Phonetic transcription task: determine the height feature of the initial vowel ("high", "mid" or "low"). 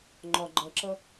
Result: low